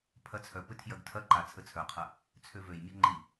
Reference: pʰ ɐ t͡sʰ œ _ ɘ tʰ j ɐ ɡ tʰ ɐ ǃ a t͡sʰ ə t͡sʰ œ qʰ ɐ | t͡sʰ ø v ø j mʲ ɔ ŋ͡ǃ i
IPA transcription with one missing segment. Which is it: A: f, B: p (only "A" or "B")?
B